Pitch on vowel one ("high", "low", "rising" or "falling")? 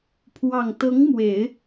low